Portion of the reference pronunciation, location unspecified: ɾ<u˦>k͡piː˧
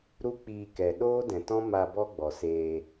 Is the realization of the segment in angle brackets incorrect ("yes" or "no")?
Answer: no